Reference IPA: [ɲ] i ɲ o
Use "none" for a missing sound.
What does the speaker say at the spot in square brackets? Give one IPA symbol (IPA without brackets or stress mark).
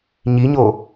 ɲ